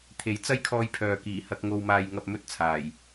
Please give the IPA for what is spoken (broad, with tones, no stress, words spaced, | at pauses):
t̪ʰe˨˥j t͡sɐ˥jkʰɔː˧jpʰœː˨ kiː˨˩hɐ˧k̚ ŋo˧wmaː˧jŋɐ˧p̚ mɵ˥t̚t͡sʰaː˨˩j